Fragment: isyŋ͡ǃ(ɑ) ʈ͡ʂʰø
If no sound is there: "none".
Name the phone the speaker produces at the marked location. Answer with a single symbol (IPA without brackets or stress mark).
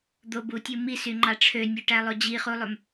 ɑ